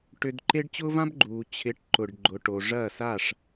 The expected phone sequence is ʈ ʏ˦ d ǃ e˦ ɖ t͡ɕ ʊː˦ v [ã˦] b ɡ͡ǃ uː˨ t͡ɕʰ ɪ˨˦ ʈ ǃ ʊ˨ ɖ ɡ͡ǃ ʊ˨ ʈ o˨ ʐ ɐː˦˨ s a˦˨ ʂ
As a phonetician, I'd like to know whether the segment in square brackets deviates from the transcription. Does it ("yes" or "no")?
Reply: no